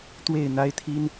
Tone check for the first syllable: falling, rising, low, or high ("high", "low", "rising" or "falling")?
falling